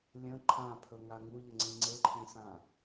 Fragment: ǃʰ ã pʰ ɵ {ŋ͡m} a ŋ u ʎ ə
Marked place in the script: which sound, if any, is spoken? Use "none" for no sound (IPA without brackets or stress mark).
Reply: ŋ